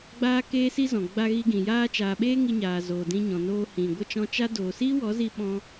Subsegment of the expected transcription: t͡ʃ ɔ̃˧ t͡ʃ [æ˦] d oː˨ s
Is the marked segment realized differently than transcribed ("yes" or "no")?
yes